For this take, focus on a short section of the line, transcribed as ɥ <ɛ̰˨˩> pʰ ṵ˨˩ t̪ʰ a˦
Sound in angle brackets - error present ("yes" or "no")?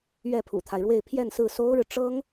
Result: yes